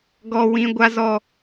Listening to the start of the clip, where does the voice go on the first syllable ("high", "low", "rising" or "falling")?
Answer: high